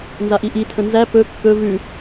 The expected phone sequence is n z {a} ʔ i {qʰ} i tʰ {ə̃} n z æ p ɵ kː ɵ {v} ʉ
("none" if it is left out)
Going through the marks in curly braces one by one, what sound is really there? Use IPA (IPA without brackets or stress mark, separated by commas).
a, ʔ, ə̃, v